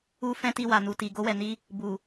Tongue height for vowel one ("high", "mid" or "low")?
high